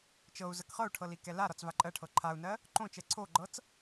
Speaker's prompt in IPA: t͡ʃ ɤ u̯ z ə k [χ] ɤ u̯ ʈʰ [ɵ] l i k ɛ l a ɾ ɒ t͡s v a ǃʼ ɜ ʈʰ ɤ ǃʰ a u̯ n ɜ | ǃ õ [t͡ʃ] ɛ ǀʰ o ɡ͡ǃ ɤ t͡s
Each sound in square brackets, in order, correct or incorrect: correct, incorrect, correct

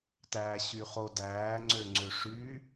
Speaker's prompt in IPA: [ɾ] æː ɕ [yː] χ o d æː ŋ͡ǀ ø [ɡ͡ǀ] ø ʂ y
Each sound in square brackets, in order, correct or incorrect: incorrect, incorrect, incorrect

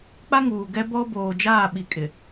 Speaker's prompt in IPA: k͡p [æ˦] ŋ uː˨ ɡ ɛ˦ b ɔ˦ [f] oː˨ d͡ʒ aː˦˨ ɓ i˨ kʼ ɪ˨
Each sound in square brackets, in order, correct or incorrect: incorrect, incorrect

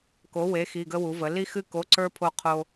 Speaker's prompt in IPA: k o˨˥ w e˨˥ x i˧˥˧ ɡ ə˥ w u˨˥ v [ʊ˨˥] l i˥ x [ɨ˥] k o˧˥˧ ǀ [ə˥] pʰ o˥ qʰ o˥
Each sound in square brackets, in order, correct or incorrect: incorrect, correct, incorrect

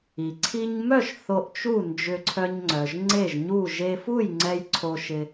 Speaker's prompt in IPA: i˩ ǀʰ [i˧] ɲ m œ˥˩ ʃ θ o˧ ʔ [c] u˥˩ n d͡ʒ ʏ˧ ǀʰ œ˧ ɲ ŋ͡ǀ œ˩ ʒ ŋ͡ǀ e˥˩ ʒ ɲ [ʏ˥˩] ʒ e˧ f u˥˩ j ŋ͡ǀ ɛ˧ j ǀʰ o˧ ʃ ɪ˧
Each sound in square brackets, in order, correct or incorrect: correct, incorrect, incorrect

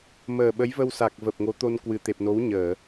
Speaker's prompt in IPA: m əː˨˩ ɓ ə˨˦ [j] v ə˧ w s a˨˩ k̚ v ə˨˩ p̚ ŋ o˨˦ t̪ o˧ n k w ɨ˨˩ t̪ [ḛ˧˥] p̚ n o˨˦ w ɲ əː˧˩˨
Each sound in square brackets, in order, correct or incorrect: correct, incorrect

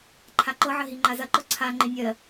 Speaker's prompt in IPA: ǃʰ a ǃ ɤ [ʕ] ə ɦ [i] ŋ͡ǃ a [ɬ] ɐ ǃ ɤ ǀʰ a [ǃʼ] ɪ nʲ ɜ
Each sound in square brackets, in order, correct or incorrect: correct, correct, incorrect, incorrect

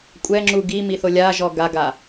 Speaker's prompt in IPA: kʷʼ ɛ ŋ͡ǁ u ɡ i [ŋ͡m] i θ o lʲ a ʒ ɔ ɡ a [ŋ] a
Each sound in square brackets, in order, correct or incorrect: incorrect, incorrect

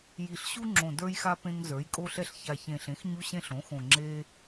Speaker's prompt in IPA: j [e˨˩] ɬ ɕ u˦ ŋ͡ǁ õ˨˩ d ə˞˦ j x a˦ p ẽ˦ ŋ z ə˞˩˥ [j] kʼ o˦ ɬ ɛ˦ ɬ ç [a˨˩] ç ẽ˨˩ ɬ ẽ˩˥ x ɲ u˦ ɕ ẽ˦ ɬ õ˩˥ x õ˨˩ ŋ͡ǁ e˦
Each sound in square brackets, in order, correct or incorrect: incorrect, correct, correct

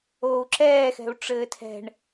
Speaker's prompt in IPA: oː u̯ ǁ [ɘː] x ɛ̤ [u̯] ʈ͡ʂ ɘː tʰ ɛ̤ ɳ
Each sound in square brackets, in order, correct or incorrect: incorrect, correct

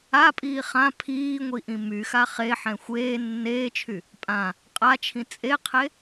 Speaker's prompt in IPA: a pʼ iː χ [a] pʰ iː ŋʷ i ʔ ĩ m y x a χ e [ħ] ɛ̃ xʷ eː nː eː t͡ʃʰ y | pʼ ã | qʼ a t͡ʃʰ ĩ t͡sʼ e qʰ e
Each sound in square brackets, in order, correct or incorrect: incorrect, correct

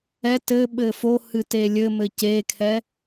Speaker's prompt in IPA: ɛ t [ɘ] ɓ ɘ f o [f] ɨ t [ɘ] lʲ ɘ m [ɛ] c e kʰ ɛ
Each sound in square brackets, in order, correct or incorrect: correct, incorrect, incorrect, incorrect

